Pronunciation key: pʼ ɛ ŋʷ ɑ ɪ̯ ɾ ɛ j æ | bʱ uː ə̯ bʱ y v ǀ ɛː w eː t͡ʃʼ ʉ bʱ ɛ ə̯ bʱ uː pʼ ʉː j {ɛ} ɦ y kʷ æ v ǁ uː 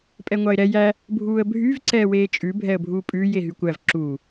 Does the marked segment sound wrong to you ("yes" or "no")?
yes